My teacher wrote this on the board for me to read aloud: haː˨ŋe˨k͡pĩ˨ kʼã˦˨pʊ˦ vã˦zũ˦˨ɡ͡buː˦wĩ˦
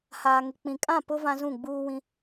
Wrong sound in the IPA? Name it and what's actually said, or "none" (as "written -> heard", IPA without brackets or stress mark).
none